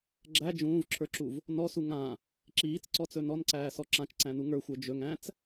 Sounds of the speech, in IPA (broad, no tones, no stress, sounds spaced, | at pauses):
ɡ͡ǁ æ d͡ʒ ũː v ǁʰ ə˞ ǁ u v | n ɔ s u ŋ ã | ǁ iː t͡s ǀ ɔ t͡s ɵ n ɔ n ǀ æː s ɔ ǁ ã t͡ʃ ǀ æ̃ n u ŋ ə˞ xʷ ə˞ d͡ʒ ɵ ŋ æ̃ t͡s